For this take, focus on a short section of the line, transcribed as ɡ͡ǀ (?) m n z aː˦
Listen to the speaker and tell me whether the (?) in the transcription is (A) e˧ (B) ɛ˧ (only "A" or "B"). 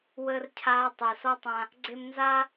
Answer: A